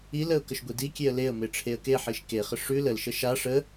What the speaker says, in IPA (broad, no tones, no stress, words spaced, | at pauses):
iləʊ̯ kəʃɡʷidikʲeə̯ leə̯me ʈ͡ʂʰeə̯keħiʃ keχə ʂʉ ləlʃə ʃa ʂə